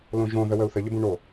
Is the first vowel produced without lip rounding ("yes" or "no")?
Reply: no